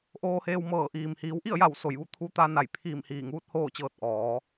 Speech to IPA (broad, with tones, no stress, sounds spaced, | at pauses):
ʔ oː˧ h eː˧ w m ɤː˧˩ ʔ iː˩ m h iː˩˧ w ʔ i˥˨ ə̯ j a˧˩ w s o˧˩ j ʋ u˥˨ t̪ʰ u˧˥ t̪ a˧ n a˧˩ j pʰ iː˧˩ m h iː˧˩ ŋ uː˧˥ t̚ h oː˥˨ t͡ɕ ɤː˧ t̚ ʔ ɔː˩˧